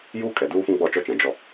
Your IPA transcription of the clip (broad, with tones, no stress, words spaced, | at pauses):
juː˦kʼɛ˨duː˦fũ˦ ɡ͡bɔ˦˨t͡ʃɔ˦t͡ʃã˨ d͡ʒɔ˦